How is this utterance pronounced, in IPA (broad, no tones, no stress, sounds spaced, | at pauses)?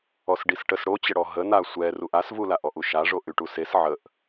ɔ s ɖ i s ʈ ə s ɽ o t͡ɕ ə ɽ ɔ ɦ ə n a sʷ ɛ r u ʔ a s v u l a ʔ ɔ ʔ u ʃ a ʐ o ʔ y ʈ u s e s ʕ ə ʔ